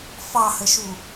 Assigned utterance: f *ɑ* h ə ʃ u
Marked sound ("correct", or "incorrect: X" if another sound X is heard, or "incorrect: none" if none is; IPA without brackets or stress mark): correct